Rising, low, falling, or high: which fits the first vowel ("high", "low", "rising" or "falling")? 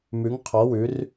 rising